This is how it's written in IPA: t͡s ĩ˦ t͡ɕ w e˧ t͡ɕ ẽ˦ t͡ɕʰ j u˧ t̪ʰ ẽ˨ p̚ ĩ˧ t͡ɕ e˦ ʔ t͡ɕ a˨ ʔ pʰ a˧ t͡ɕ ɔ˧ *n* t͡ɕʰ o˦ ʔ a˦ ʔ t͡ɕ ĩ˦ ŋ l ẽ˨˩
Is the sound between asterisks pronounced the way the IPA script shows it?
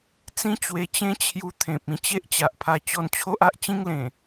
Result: yes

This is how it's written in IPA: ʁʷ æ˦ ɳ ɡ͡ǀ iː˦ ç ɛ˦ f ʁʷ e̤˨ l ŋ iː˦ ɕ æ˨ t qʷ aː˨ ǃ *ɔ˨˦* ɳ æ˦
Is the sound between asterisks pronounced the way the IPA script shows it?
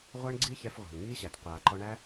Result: no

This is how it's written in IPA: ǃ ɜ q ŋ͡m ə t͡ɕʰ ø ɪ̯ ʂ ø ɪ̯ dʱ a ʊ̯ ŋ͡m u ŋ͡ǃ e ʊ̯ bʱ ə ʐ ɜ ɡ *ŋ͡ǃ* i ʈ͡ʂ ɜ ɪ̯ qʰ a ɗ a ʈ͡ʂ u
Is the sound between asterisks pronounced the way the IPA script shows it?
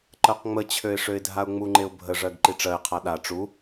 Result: no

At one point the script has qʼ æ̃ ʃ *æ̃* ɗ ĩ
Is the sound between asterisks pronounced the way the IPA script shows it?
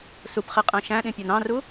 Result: yes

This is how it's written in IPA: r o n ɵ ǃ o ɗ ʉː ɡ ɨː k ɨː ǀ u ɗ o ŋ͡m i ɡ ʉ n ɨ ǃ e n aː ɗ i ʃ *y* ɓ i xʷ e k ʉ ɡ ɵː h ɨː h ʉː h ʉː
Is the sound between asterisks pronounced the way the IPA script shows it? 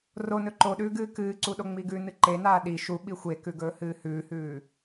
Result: no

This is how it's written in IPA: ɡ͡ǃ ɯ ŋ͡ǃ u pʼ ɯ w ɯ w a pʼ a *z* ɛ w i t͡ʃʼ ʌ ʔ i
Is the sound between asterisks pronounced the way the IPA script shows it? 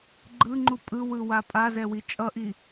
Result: yes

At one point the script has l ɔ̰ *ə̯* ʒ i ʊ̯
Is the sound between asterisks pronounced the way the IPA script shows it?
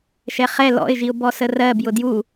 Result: no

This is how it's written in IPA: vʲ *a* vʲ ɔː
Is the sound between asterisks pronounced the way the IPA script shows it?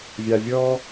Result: yes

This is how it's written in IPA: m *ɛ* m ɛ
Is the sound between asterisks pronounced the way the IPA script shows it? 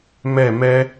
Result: yes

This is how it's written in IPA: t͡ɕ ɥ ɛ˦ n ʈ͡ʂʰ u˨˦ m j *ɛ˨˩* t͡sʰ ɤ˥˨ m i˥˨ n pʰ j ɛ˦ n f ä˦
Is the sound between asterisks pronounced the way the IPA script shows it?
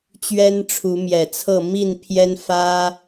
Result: yes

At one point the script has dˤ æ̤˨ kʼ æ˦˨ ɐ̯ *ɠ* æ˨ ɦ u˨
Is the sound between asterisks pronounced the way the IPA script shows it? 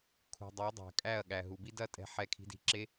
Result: yes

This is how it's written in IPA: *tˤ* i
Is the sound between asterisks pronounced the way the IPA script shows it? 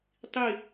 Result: yes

